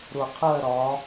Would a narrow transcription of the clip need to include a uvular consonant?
yes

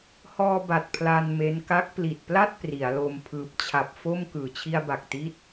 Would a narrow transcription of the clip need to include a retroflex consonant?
no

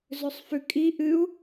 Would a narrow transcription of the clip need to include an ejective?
yes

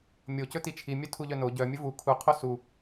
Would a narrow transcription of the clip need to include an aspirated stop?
yes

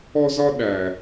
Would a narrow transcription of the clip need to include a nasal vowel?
no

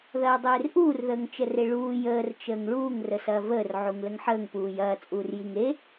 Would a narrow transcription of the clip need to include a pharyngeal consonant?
yes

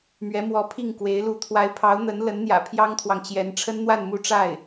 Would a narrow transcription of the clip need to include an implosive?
no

